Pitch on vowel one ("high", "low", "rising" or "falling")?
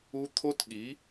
high